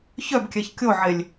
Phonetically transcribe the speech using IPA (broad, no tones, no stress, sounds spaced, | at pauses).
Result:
ç œ b kʲ ɛ ç kʲ o ʕ e lʲ